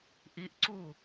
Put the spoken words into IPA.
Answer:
ʔ i ʔ ǀ u

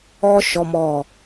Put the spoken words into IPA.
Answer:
ɔ˦ ʃ ɔ˦ m ɔ˦˨

